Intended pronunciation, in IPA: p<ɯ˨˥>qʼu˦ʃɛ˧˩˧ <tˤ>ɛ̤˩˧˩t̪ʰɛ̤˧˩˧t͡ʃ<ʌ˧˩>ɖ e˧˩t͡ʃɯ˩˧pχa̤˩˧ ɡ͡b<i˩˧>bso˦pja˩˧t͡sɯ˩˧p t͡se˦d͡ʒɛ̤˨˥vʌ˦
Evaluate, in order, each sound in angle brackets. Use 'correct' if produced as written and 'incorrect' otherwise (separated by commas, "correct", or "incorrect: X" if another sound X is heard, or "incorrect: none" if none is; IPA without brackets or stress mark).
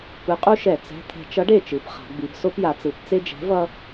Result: correct, incorrect: t͡s, incorrect: ʌ˨˥, correct